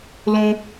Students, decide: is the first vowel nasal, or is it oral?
nasal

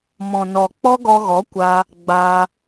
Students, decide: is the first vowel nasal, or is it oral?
nasal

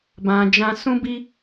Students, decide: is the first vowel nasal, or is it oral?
nasal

